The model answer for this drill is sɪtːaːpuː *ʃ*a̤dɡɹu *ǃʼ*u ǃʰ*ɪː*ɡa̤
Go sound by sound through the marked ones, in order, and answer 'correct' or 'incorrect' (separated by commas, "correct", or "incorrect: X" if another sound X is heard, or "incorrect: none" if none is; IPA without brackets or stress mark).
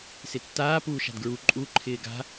correct, correct, correct